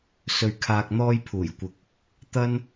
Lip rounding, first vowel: rounded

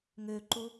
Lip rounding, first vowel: rounded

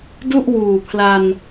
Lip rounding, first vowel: rounded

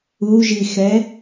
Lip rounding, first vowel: rounded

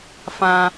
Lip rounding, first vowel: unrounded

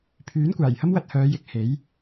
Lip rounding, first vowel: rounded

